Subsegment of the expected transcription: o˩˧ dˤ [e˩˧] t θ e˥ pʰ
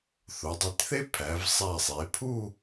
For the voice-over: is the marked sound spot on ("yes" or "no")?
no